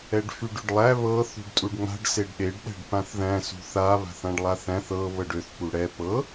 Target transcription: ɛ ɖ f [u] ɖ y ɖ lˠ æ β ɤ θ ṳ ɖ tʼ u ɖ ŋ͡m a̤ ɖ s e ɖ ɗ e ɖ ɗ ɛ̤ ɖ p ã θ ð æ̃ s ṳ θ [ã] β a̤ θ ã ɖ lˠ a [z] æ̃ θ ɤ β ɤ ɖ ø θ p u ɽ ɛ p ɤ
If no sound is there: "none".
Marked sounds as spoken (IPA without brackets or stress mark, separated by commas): y, a, θ